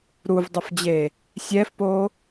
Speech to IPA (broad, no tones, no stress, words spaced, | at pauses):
ɾuvdˤɐfd͡ʑe | sʲɛfpo